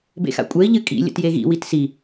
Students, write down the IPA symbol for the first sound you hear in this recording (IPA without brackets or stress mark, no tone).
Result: b